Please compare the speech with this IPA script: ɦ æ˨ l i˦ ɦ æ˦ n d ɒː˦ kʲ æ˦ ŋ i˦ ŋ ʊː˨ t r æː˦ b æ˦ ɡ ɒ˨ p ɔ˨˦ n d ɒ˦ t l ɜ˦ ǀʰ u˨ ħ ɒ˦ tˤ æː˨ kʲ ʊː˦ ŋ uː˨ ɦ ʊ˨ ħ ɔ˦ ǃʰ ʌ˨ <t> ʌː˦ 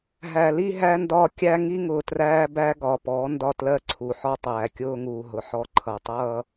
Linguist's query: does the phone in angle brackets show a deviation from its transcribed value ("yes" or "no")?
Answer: yes